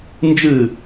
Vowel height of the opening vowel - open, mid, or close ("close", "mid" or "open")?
close